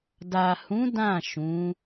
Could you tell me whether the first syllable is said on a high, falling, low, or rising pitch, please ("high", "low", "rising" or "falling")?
low